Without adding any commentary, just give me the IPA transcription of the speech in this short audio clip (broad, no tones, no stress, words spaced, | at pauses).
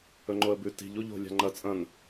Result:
ɵŋ͡ǃoə̯bʉ ti̤ʎ uʎo̤ lʲa̤ŋ͡ǃɐ t͡sʼɐ̃n